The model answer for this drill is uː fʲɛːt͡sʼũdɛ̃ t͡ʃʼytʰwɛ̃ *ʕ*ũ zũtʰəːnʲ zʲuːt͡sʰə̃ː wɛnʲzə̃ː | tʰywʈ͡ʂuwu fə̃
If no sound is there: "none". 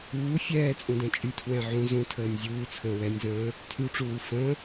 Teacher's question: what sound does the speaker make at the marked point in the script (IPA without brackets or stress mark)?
ʕ